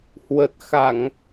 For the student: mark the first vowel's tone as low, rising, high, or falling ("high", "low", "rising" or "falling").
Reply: low